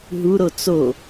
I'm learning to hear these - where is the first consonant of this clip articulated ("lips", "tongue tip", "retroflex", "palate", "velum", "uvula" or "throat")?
throat